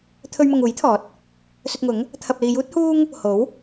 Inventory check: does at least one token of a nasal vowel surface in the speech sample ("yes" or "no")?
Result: no